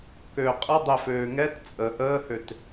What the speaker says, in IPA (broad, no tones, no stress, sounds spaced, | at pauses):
k ø qʼ ə dˤ e f øː ŋ ɛ t t͡sʼ ə ʔ əː h ø t